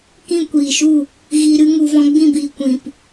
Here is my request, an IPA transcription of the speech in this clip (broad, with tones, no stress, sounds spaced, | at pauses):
k ĩ˦˨ kʷ iː˨ ʃ u˦˨ | ɣ i˧ ɾ ɨ˦ ŋ u˨ v ɔ̃˧ ɡ͡b ĩ˦˨ b iː˨ kʷ ĩ˨ p